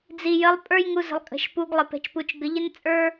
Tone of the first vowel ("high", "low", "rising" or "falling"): low